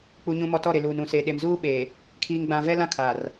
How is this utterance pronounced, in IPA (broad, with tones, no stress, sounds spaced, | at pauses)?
k͡p u˨ ɲ ũ˨ m ɔ˨ t ɔ˦˨ ɾ ɪ˨ l uː˨ n ũ˨ s e˨ ɗ e˨ m z uː˦ ɓ eː˨ | kʰ iː˨ ŋ ɡ͡b ã˨ v ɛ˦ l ã˦ kʰ aː˨ r